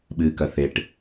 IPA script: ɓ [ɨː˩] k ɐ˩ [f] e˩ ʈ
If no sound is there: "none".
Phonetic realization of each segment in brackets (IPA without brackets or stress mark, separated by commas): ɨː˩, θ